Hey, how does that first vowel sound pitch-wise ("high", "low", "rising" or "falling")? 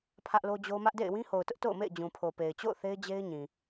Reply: high